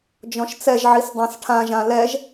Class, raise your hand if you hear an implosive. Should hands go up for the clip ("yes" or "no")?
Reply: no